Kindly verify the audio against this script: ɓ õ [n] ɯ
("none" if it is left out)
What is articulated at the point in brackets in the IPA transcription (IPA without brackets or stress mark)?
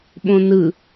n